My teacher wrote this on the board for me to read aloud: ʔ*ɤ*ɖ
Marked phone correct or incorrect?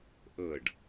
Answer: correct